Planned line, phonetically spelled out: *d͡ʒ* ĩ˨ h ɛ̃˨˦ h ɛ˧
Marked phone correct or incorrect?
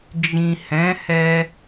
correct